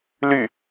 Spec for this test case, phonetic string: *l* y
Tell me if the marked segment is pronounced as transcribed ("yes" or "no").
yes